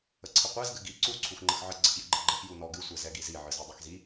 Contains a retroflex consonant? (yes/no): no